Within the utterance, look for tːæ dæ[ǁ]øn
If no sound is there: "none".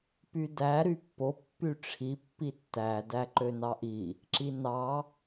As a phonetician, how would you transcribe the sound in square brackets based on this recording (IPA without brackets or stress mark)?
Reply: ǃ